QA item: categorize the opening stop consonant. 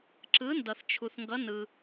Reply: click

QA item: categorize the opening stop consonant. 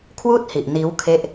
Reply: aspirated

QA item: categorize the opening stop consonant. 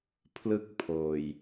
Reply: aspirated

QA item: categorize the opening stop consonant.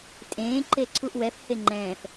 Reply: ejective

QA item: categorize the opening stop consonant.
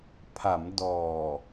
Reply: aspirated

